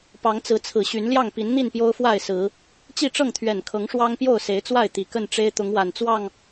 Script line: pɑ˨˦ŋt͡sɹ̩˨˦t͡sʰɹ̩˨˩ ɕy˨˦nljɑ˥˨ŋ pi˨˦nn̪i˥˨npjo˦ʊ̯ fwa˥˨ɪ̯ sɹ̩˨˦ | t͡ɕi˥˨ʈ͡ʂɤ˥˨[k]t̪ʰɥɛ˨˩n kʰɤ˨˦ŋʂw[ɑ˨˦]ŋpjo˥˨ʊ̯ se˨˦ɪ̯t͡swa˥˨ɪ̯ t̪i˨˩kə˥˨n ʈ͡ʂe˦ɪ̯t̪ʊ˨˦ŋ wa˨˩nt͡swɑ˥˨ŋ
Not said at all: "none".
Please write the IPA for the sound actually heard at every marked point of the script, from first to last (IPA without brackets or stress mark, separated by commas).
ŋ, ɑ˦